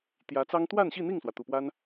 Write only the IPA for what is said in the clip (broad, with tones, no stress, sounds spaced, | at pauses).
t̪ j ä˧˥ t͡s ɑ˥ ŋ t̪ w a˥˧ n ɕ i˥˧ n̪ i˥˩ ŋ s w ä˩ t̪ u˨˩ p w a˥ n